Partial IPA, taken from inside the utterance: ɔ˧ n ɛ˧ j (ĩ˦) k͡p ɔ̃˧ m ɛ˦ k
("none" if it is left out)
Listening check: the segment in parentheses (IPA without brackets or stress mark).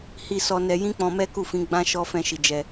ĩ˦